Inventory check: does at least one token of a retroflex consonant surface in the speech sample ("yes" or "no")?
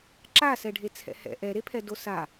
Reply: yes